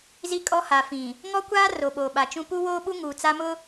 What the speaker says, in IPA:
z i˦ kʼ ɔ˦ h a˨ f ĩ˨ | ŋ ɔ˦ kʷ aː˦ r o˨ ɓ oː˨ ɓ a˨ t͡ʃ ũ˦ p u˦ w oː˦ ɓ u˦ ŋ uː˨ t͡s a˦ m ʊ˦

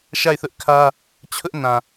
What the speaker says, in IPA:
ʃ a˦˨ ɪ̯ θ ʊ˦ ʔ kʰ ä˦ | t͡ɕʰ ʊ˦ ʔ n ã˨

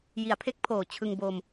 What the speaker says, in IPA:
j i˩˦ a̯ pʰ e˦˥ k̚ pʰ oː˨˩ t͡ɕʰ ɯ˧ ŋ b o˧ m

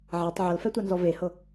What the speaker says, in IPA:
ʕ a tˤ ʕ ɤ l f ɛ tʷ a n z ɔ v e h ɤ

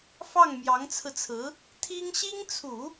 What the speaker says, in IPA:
f ɑ˥˩ ŋ m j ɑ˧˥ ŋ t͡sʰ ɹ̩˧ t͡sʰ ɹ̩˧˥ | t̪ʰ i˥ ŋ ɕ i˥ ŋ t͡sʰ u˨˩˦

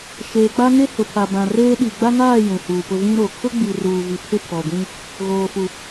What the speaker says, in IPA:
ʃ eː˨ k͡p a˦ ŋ e˦ h ʊ˨ pʰ a˨ b ã˨ r eː˦ ɗ i˨ ɡ͡b a˦ ŋ aː˦˨ j ũ˨ h uː˨ p ʊ˦ v ĩ˦ ɾ o˨ kʰ ʊ˦ ɡ͡b i˨ r uː˨ v i˨ pʰ ɪ˦ pʰ ɔ˨ ɡʷ ĩ˦ | ɣ oː˨ f u˨

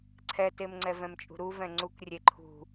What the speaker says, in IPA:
ǀʰ ɛ t e m ŋ͡ǀ ɛ v ɛ̃ m t͡ʃʼ ṳ ɾ u v ɛ̃ ŋ͡ǀ u k rʲ e ǃʰ ṳ

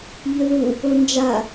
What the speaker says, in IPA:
ʎ ɵ ð u | o n d͡ʒ a

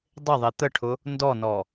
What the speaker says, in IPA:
dˤ ɪ ðˤ i t̪ ə ʈʰ ʊ | n d ɔ n ɔ

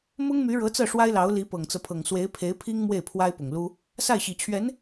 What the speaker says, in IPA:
m ʊ˥ ŋ m y˧˥ ɻ ɤ˧˥ t͡s ɤ˥˩ ʂ w a˥ ɪ̯ l ɑ˧˥ ʊ̯ l i˧˥ p ɤ˨˩ ŋ t͡s ɤ˦ pʰ ɤ˨˩ ŋ s w e˧˥ ɪ̯ pʰ e˧˥ ɪ̯ pʰ i˥ ŋ m w e˥˩ ɪ̯ pʰ w a˥ ɪ̯ p ʊ˨˩ ŋ l u˥ | s a˥˩ ɪ̯ ɕ i˨˩ t͡ɕʰ ɥ ɛ˧˥ n

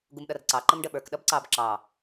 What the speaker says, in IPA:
ɡ u m ɗ ʌ r ǀ ɑ ǃ ə m ɖ ə ɓ ə˞ k ɗ ʌ b ǀ ɑ b ǁ ɑ

